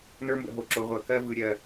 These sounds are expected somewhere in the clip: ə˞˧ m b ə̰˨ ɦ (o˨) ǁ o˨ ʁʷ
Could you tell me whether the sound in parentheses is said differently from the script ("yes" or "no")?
no